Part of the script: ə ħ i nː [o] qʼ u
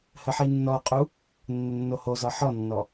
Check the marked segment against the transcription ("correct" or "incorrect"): incorrect